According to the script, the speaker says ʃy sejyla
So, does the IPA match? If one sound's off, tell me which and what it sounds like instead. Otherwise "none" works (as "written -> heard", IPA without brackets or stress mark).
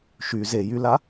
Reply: s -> z